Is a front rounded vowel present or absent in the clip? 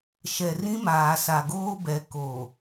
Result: absent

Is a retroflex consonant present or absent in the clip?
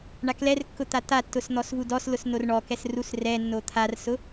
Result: present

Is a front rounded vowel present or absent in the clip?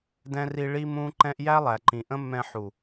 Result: absent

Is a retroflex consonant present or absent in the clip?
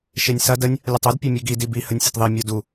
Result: absent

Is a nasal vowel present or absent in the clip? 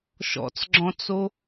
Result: present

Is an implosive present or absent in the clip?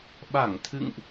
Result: present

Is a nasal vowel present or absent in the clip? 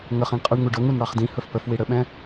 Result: present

